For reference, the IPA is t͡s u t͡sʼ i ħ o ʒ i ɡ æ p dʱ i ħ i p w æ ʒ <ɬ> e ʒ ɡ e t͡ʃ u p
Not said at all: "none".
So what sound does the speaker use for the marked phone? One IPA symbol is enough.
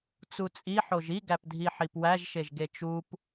ʃ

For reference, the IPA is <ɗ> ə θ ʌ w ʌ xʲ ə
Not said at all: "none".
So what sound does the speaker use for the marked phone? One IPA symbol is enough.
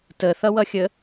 t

